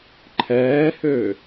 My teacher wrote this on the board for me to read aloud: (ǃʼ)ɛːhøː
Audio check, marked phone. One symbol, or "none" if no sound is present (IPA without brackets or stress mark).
ǃʰ